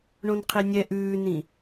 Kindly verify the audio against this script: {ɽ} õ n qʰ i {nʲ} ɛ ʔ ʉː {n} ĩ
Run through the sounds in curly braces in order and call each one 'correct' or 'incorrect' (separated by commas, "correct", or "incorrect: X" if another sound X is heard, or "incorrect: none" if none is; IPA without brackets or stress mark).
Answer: incorrect: ɳ, correct, correct